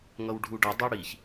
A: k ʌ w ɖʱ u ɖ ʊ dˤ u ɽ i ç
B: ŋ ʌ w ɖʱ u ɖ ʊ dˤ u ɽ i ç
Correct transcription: B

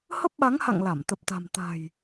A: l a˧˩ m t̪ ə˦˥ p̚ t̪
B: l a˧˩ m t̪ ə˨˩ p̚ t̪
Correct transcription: B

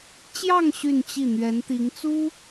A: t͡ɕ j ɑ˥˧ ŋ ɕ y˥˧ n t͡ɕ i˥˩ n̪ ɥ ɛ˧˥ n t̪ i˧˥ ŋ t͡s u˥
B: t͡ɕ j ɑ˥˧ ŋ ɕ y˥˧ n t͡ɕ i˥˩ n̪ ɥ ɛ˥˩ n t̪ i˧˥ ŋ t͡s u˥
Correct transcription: A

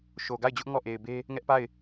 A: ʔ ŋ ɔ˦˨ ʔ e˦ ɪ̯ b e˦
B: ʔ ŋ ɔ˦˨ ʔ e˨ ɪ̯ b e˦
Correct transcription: B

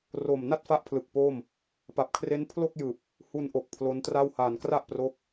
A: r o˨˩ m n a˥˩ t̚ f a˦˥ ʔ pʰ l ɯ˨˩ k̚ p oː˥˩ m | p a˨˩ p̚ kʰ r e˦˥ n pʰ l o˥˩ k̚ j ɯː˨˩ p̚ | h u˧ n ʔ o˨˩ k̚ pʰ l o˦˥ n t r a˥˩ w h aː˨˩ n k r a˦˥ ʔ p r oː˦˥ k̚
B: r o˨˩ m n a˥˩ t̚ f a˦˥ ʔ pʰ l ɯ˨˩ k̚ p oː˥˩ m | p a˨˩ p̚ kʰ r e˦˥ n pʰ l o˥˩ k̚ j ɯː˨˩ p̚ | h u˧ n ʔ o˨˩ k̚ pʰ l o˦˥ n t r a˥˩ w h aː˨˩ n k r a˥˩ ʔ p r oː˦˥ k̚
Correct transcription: B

